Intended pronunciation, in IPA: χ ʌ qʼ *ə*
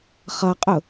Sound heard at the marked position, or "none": ʊ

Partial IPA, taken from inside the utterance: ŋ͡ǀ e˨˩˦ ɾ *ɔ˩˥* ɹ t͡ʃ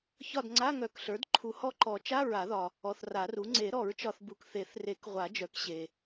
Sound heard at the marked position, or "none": ɔ˨˩˦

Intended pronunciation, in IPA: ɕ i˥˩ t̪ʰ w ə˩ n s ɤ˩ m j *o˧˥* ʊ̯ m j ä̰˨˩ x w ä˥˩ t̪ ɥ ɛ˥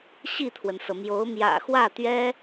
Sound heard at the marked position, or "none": o˧˥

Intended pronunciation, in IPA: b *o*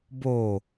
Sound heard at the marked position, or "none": o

